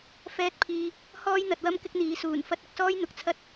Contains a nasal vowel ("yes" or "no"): no